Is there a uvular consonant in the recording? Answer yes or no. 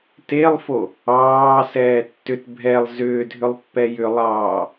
no